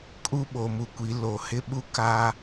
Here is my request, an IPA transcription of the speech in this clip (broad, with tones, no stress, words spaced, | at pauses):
kʼu˦ ɓo˨mu˨kʷi˨˦ lo˨hɪ˦ɓu˦ ka˦